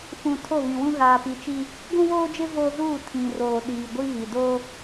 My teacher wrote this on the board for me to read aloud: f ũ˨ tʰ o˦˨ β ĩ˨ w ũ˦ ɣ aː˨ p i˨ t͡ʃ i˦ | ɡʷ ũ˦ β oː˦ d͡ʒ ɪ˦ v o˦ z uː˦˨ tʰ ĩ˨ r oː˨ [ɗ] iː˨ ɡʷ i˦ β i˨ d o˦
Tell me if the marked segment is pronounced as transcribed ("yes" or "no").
yes